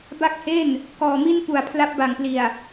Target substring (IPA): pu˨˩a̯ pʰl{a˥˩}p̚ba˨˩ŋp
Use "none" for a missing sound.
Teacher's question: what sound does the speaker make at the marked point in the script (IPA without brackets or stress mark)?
a˦˥